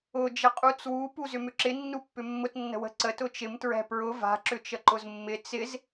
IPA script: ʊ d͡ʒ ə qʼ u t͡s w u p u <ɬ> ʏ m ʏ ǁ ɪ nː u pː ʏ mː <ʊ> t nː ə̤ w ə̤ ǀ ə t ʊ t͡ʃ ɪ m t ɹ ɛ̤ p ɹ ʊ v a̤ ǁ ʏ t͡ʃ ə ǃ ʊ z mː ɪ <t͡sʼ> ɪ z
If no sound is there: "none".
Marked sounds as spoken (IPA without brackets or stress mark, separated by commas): z, ʊ, t͡s